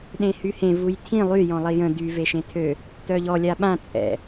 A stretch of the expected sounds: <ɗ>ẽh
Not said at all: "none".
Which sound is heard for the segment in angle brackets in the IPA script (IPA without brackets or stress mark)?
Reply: ɗ